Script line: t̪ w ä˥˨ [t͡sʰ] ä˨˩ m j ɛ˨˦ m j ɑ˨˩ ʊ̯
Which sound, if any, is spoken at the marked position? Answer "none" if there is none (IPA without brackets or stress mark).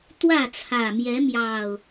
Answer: t͡sʰ